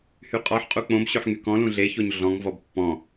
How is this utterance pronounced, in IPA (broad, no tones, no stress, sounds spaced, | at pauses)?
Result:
h y qʼ ɔ ħ qʼ u k͡p õ b ɕ ø ħ ŋ y k ɔ̃ l ũ ɮ e ç o ɲ ɮ ɔ̃ ŋ v ɔ b pː ɔ̃